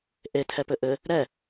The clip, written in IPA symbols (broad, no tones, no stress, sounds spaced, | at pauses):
ʔ e tʰ ɛ p ɘ ʔ ɘ | ɾ ɛ